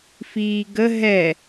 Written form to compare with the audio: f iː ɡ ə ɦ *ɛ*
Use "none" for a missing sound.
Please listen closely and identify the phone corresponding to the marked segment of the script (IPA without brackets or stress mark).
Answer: ɛ